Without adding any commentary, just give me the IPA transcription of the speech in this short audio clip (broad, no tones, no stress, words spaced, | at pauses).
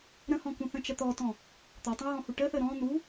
ɾə̃hɔ̃kũ θə̃t͡ʃət̪ɔtɔ̃ | t̪ɔtˤə̃ɹɔ̃hu ʈəθə ɾɔ̃ n̪u